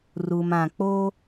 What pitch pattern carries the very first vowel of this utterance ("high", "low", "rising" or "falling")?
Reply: low